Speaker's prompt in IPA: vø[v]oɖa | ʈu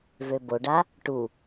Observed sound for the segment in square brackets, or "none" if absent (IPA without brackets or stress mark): b